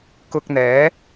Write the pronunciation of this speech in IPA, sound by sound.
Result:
k ʊ˧ k̚ n̪ ɛː˨˥

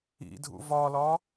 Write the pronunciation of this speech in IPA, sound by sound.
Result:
ḭ dʱ ṵ v ɒ l ɒ

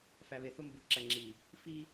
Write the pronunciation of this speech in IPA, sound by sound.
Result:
f æ˨ β e˨ θ o˦ m b u˨ ǁ æ˨ ŋ͡ǁ i˨ | f i˦

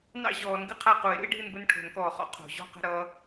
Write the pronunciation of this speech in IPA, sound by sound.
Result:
n ɑ̰˥˧ ʑ ɔː˨˩˦ n ɡ ɨ˥ qʰ a˥˧ q u˨˩˦ e̯ ɾ ṵ˥ e̯ ɖʱ ɨ˥˧ n b ə˥ n ʈʰ o̤˨˩˦ n k ɔː˨˩ χ ɔ̰˥ qʰ o̤˨˩˦ ʑ ɔ̤˥˧ q ə̤˥˧ ɾ ʌː˥

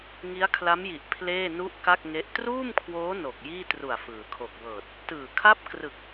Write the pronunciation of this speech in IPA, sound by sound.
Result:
ŋ i˦˥ a̯ kʰ l a˦˥ m j i˨˩ ʔ pʰ l eː˥˩ n u˥˩ ʔ k a˥˩ k̚ ŋ e˦˥ ʔ t r uː˥˩ m kʰ w oː˦˥ n o˨˩ k̚ j iː˥˩ t r u˨˩ a̯ f ɯː˩˦ kʰ o˨˩ k̚ w ɤː˨˩ t̚ | t ɯː˨˩ kʰ a˥˩ p̚ k r ɯ˨˩ k̚

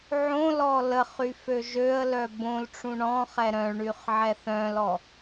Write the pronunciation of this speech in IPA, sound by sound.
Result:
ʕ õ l ɔ l ə χ y f ø ʒ ø ə̯ l œ b õ l ʈ͡ʂ ũ ɳ ɔ̃ χ ɛ ɾ œ̃ ɭ ɳ y χ ʕ ɛ θ œ̃ l ɔ

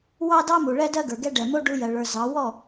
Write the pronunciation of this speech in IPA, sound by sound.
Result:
w ɑ˦ d ɑ˦ m u˨ ɭ ɛ˦ d ɜ˦ ɡ ə˞˨ ɡ ɛ˦ ɖ ɛ˨ m o˦ ɖ u˦ j ɜ˨ ɭ ə˞˨ z ɑ˨˦ w ɔ˦˨

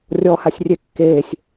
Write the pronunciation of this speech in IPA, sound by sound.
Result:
rʲ ɔ h a sʲ rʲ e kː eː sʲ

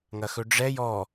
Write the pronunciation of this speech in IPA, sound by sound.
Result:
ŋ ɐ x ɵ ɖ͡ʐ ɛ j ɔ

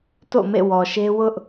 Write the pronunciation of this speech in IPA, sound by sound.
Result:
t o̰˦˨ m ḛ˦˨ w ɔ˨ ʃ e˦ w ʊ˦ ʔ

